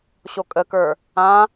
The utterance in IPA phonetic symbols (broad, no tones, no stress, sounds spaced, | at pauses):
ɕ o kʼ ə k ə˞ | ã